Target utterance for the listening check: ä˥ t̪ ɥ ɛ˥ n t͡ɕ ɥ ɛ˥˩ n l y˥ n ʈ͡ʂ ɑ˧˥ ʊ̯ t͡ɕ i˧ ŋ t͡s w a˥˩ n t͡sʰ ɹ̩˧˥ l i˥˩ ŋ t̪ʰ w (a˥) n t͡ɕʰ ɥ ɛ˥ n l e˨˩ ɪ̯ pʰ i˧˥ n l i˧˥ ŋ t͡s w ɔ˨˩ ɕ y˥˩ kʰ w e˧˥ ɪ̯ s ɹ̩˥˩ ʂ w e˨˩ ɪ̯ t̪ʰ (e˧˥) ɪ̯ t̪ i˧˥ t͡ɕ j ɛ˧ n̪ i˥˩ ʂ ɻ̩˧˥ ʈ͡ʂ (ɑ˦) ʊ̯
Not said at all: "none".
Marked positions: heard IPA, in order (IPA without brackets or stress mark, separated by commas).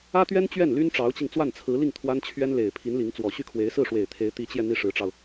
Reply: a˥, e˧˥, ɑ˧